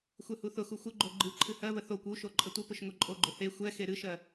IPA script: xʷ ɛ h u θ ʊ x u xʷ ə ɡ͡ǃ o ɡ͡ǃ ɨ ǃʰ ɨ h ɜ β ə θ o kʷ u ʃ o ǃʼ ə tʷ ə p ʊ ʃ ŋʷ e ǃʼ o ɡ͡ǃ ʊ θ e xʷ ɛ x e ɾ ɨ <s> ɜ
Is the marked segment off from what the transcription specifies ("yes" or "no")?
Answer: yes